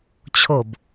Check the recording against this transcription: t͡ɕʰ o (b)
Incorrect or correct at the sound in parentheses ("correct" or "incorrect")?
correct